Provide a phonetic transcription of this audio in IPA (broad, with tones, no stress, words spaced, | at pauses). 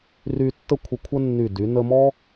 ry˧ tːə˥˧kʷʰə˧kʷʰə˥ nːy˧˩ dy˩˧nə˧mɔ˥